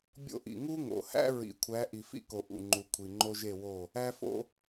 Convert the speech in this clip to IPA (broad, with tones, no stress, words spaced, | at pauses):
bʲo̰˦ʔḭ˨ ŋu˦ŋo̰˨hæ̰˦ ɹḭ˨˦kʷʰæ˨˦ ʔi˨fḭ˦ko˨ ʔṵ˨ŋ͡ǃu˨ kʷʰi˨ŋ͡ǃo˦ʒe˦˨wo˦˨ | æ˦fo̰˦